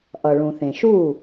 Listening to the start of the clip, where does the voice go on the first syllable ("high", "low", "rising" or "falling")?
low